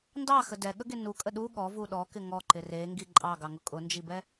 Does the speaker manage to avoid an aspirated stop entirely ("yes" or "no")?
yes